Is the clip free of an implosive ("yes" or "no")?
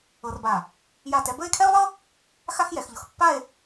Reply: yes